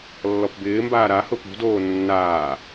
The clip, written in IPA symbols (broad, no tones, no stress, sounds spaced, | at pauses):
lː ɔ p b ɪː m b aː ɾ a h ʊ p ṳ d oː nː aː